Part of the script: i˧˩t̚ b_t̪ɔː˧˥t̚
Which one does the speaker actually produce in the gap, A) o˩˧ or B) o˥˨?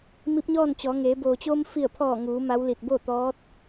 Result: B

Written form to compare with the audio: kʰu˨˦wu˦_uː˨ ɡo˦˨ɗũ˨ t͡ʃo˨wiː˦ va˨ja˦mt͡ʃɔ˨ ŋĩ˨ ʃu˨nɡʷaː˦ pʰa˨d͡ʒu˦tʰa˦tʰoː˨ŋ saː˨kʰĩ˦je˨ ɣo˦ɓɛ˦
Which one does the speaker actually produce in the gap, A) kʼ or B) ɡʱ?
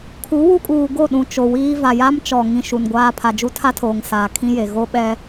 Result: A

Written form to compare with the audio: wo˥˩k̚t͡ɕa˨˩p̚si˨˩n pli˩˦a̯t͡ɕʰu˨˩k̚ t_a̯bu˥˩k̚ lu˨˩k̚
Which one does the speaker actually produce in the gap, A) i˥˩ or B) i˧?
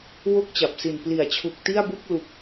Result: A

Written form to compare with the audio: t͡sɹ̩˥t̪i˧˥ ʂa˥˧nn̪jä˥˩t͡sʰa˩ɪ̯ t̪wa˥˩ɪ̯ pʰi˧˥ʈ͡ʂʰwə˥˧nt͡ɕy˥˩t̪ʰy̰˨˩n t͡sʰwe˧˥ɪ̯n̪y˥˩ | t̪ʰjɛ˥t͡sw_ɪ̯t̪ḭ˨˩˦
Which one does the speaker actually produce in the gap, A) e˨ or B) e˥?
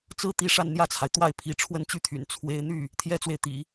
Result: A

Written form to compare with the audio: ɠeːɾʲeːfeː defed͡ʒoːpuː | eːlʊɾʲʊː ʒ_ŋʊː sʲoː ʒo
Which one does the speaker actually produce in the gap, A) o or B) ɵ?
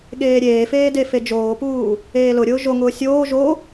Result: A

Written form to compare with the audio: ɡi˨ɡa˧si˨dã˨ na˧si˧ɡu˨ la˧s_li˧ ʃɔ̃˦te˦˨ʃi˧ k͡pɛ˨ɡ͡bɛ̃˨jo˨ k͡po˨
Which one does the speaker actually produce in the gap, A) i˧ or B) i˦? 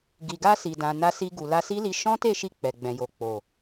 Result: B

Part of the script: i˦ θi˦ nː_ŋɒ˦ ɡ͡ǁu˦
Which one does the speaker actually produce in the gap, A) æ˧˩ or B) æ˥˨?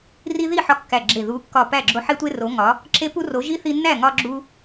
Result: B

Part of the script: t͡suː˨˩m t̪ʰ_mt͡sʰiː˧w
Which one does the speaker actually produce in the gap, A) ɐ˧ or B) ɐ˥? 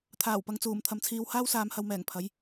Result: A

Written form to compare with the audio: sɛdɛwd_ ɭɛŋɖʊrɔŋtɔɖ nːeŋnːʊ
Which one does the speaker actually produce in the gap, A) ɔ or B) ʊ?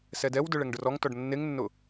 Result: B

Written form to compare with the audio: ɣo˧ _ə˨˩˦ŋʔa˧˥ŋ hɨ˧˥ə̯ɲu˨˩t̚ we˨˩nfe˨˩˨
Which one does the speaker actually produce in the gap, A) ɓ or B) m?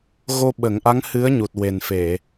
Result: A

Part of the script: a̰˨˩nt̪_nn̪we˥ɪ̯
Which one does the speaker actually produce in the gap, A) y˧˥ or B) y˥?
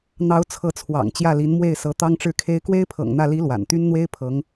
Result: B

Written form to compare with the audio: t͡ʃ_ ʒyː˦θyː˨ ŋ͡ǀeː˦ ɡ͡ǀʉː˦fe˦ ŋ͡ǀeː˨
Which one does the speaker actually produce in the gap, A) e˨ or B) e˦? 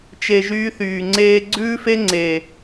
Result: A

